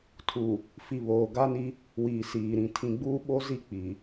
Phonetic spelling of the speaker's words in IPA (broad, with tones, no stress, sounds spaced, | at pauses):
tʰ u˨ | f i˨ β oː˨ ɡ a˦ n i˦ | w iː˨ s iː˨ ɾ ĩ˨ tʰ ĩ˨ ɡ͡b uː˦ ɓ o˦ z i˦ k͡p i˨